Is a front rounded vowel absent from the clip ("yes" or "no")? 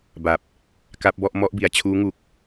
yes